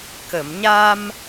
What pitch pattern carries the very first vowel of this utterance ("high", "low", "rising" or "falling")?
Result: low